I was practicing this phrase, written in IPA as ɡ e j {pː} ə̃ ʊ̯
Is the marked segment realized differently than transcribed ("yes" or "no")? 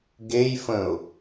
yes